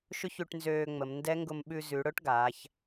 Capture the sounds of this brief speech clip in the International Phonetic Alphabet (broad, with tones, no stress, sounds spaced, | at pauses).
ʃ ʊ˥ ç ʉ˧ ʈ n z øː˧ ŋ͡m ə˩˧ m n d ɛ˧˥ ŋ ɡ ʊ˧ m ɓ ʉ˧ z ʉ˩˧ ɽ ʊ˥ ʈ ɡ aː˩˧ ç